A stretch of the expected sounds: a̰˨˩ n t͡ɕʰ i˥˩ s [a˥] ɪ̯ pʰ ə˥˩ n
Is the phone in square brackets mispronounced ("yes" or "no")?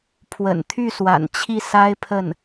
no